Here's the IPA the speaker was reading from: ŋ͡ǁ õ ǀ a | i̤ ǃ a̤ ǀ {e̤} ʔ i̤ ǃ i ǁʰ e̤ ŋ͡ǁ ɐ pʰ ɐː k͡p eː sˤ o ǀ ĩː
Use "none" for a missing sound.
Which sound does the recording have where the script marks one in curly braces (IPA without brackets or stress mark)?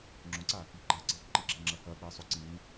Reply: e̤